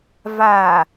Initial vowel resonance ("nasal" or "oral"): oral